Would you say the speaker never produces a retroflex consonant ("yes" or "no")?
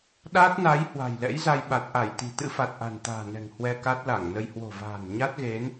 yes